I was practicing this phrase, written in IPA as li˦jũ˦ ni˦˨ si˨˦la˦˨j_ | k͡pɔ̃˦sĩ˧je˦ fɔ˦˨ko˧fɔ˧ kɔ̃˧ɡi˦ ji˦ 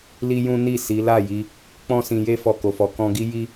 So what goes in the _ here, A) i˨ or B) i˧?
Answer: B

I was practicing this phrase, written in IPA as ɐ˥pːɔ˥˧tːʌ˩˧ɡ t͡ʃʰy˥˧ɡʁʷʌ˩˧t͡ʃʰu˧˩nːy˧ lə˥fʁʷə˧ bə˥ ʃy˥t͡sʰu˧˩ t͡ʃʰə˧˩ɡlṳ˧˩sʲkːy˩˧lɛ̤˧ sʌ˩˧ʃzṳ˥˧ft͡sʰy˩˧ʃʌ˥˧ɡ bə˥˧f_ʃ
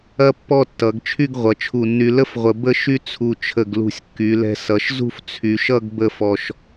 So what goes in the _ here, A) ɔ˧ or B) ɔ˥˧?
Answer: A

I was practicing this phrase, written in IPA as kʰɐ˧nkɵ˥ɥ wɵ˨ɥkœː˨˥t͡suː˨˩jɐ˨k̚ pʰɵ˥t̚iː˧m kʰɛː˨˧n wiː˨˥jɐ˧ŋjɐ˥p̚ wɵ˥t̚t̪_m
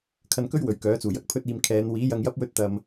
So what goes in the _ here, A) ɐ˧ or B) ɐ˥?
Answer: A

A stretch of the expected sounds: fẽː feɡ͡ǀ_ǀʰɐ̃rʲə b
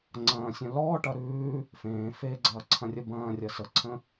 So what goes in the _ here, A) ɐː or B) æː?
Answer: A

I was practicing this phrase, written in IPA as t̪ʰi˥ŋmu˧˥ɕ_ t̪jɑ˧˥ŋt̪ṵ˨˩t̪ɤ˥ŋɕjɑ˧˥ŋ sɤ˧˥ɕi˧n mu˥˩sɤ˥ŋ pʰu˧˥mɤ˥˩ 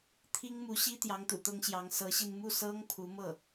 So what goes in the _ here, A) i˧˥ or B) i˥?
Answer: B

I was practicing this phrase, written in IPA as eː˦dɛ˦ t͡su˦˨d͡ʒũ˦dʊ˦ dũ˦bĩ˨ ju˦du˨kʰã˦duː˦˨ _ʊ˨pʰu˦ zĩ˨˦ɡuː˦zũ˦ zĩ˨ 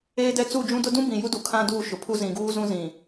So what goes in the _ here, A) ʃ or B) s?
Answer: A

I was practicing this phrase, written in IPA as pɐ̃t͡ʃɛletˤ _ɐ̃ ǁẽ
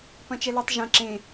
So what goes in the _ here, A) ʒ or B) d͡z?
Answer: A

